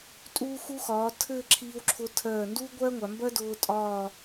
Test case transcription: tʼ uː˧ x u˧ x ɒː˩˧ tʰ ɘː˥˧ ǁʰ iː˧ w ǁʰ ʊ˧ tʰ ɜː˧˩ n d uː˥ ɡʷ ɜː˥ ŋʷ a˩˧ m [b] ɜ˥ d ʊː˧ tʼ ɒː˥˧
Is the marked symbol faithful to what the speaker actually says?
yes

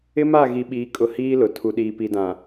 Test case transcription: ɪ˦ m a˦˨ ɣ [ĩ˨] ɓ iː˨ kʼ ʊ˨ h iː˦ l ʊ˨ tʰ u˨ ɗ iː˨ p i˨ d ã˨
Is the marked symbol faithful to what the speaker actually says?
no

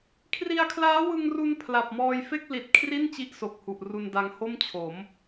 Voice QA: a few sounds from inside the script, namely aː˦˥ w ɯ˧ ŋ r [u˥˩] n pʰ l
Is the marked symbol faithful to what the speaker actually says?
no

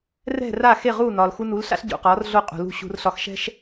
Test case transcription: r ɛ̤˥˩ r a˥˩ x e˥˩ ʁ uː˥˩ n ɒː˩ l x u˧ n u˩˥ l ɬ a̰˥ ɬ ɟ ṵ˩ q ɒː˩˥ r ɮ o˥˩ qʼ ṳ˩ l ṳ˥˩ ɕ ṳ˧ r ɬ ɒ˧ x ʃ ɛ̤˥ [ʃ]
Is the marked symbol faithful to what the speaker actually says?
yes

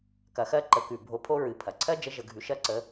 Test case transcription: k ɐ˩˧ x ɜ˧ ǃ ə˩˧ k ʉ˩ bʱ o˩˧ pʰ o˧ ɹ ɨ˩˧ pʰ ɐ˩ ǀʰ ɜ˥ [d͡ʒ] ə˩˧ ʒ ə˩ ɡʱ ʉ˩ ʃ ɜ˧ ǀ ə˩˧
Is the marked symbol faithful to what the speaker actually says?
yes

